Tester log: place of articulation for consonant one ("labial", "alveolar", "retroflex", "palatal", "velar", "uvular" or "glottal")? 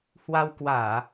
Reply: glottal